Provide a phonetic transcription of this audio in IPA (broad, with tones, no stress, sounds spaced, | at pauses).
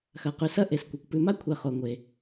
x ɐ˩ q ʉ˩ s ɐ˦ ʔ e˩ s kʷ ɐ˩ kʷ p ʉ˨ m a˥ kʷʰ ɛ˨ χ o˩ ŋʷ e˩